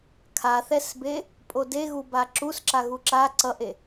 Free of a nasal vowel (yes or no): yes